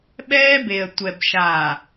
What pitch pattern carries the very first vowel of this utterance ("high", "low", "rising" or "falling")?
high